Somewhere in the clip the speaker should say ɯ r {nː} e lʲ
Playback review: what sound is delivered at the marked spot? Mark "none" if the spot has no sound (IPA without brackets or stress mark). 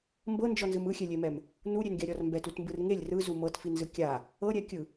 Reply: ŋ